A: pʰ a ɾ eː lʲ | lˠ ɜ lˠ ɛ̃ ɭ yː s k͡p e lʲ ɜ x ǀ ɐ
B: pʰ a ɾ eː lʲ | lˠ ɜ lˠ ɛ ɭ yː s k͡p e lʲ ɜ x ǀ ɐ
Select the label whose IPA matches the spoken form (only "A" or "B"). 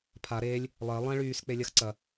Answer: A